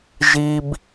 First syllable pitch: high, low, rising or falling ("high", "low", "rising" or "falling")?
high